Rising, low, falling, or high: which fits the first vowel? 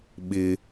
high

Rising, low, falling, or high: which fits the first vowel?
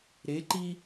rising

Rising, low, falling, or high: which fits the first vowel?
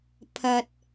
low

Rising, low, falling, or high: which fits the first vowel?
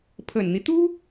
low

